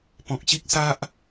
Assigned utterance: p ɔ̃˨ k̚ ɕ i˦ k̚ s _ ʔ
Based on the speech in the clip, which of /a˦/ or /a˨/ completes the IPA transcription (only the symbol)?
a˦